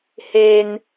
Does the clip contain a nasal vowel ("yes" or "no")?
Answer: no